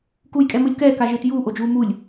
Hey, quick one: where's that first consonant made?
velum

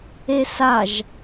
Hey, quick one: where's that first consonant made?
tongue tip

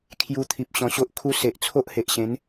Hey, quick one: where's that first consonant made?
velum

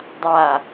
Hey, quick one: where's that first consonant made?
tongue tip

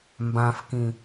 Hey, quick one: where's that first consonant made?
lips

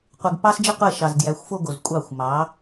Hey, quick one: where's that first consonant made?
uvula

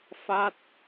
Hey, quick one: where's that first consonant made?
lips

